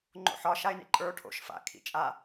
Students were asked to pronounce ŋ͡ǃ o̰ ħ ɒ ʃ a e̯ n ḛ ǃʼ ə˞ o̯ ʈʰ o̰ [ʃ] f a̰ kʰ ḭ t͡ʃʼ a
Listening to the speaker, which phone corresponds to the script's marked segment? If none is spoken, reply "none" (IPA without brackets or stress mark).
ʃ